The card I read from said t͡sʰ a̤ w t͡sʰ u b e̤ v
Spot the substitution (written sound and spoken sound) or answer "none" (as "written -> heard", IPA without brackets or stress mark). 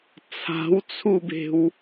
v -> w